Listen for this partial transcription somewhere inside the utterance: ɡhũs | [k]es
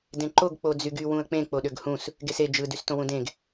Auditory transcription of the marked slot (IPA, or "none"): ɡ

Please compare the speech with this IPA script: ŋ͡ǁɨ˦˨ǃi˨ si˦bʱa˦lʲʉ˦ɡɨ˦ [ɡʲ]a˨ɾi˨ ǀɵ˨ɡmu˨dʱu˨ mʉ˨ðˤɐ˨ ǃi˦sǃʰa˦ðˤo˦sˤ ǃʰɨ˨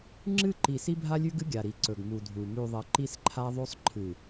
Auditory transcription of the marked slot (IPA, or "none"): ɡʲ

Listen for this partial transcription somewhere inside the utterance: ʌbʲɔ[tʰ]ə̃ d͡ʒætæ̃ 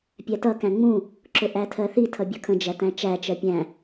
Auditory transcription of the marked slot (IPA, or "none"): kʰ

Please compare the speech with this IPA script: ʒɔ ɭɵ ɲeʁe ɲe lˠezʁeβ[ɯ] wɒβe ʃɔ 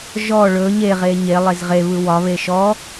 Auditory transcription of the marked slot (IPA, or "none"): ɯ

